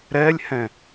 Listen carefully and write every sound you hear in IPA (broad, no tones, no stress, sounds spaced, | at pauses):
ɾ ɛ lʲ h ɛ̃